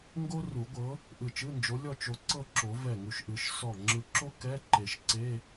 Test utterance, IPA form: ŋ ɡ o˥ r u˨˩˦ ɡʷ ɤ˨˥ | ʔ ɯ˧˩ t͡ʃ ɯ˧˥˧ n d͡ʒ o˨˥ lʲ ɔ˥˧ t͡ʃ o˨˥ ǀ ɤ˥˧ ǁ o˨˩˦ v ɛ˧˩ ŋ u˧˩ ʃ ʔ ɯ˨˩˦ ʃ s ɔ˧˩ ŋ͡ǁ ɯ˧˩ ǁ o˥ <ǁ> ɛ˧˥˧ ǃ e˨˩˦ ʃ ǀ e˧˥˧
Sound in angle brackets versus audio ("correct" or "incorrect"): incorrect